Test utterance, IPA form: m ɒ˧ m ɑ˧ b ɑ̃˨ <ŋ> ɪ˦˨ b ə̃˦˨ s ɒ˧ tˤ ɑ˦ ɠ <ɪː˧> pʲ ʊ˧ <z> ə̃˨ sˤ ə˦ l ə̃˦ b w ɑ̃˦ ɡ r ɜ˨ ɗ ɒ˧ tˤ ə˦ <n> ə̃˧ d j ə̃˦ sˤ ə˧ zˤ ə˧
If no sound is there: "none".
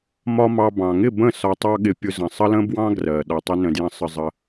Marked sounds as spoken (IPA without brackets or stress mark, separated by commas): ŋ, ɪ˧, z, n